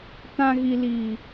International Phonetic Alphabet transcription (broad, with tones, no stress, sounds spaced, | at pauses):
t ã˦ ɣ i˦ l iː˦